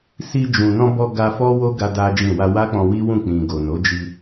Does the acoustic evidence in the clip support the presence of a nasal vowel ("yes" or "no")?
yes